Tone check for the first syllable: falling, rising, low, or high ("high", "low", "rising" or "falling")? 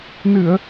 low